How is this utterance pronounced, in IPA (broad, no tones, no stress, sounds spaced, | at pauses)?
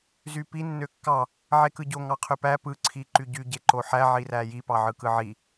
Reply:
z y p i nː ø kː ɑ | ʕ e k ɯ ɟ o ŋ ɑ qʰ ø p æ p ɯ ǀʰ i ǃ y ɟ y ɟ e ǃ o ħ æ ʕ i r æ j i p ɑ ʕ ɯ k ɯ ʕ i